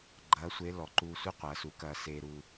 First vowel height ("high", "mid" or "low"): low